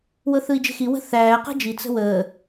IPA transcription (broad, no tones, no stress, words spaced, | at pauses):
wɤθɯi̯d͡ʒe̤xi wə̤θæː qe̤d͡ʒi t͡sə̤wəː